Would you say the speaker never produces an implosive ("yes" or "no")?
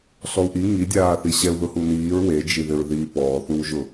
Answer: yes